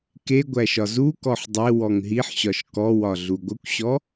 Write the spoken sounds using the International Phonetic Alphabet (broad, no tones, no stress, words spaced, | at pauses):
ke ɡʷæʃɒzukɔħ dˤe wɔŋɦiħɕɒʃ kɔwɒ ɮuɡʷəkʷɕɔ